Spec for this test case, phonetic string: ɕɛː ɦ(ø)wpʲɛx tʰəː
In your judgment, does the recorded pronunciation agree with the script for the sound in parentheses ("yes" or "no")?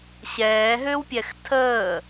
yes